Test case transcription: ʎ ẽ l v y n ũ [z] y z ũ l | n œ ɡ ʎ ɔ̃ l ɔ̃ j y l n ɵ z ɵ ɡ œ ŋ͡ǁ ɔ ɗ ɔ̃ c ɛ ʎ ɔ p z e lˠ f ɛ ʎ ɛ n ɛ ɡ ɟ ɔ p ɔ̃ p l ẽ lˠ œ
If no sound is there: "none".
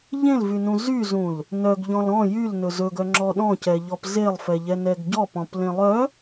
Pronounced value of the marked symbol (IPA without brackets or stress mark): z